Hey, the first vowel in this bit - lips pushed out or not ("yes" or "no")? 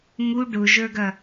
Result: yes